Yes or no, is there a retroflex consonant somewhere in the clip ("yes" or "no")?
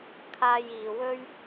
no